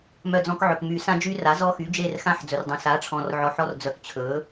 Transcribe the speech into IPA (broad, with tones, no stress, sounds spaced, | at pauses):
m œ˦˨ d͡z ɔ̃˦ k ʕ ɵ˨ k m y˨˩˦ s ã˦ d͡ʒ y˦ r a˩˥ z ɔ˦ x y˩˥ d͡ʒ e˦˨ r x ã˦ ħ d͡z ɵ˨ r dˤ œ̃˨ s a˩˥ ʈ͡ʂʰ ɔ̃˨ r ʕ ɔ˨ ħ ɔ˦ r d͡z œ˨˩˦ k t͡ɕʰ ɵ˩˥